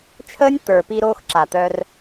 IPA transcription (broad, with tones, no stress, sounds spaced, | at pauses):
t͡ʃʰ əː˦ nʲ t̪ ə˞˨ p iː˧ ɾ oː˧ x ǁ a˨ t̪ œː˧ r